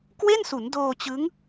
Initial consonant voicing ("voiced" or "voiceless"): voiceless